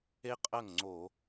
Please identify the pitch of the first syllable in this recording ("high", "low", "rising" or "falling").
high